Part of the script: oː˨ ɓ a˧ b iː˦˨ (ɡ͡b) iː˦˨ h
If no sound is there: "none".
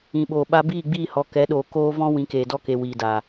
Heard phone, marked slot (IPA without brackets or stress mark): ɡ͡b